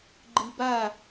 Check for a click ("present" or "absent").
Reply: present